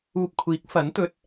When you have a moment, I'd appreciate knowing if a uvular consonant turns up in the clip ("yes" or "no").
no